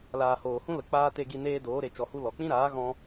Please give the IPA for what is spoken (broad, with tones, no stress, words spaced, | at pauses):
laː˨hoː˨hũ˦lə˨ k͡paː˦te˧ɡi˧ neː˦doː˨˦ɾe˨ t͡ʃɔ˨hu˧ lɔ˨ k͡pĩ˦ɾaː˨˦ ɣɔ̃˧